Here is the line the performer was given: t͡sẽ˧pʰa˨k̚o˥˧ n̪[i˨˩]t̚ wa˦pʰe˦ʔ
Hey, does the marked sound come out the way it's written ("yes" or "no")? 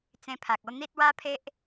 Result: no